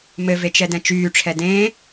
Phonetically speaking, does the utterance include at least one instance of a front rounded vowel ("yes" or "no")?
yes